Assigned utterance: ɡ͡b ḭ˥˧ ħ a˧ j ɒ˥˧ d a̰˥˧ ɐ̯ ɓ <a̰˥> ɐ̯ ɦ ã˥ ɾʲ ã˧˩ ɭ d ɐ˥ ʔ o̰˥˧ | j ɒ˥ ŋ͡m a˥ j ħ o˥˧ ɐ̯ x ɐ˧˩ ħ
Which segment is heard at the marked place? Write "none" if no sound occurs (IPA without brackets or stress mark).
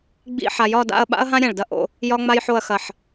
a̰˥